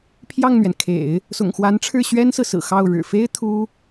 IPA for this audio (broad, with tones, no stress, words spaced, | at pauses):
pʰjɑ˥˩ŋn̪ɥɛ˩nkʰḛ˨˩˦ɪ̯ | sʊ̰˨˩ŋxwa˧˥nʈ͡ʂʰɻ̩˥˩ ɕɥɛ˥nsɹ̩˨sɹ̩˨˩ xɑ˥˩ʊ̯ ɻɻ̩˨˩fe˥ɪ̯ t̪ʰu˥